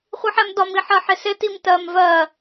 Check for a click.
absent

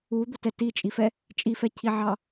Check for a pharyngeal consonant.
present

